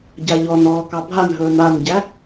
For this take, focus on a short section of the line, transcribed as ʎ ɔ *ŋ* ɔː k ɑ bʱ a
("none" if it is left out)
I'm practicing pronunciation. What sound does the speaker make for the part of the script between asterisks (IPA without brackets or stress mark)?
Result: n